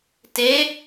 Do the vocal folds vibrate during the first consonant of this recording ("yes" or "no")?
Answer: no